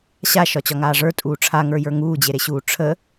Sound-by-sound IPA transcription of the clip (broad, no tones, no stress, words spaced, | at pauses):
ɕaʃɒt͡ɕɒŋaː ʐə˞tʼuː ʈ͡ʂʰaŋə˞jə˞ ŋuːd͡ʑeɾeɕuː ʈ͡ʂʰə